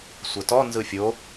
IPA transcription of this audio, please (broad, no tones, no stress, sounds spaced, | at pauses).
sʷ ə t ɔ n z ɯ fʲ o